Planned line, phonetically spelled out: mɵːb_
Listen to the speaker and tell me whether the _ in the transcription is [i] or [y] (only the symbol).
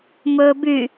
y